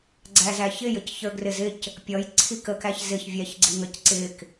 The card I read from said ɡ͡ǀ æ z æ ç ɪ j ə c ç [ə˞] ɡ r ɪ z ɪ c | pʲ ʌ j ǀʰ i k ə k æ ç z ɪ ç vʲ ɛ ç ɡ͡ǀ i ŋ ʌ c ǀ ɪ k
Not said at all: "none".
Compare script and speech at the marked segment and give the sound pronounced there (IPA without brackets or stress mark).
ə˞